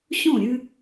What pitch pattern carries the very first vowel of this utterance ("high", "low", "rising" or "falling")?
falling